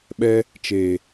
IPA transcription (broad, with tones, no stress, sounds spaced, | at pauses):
ɓ ɛ˧ | t͡ʃ e˨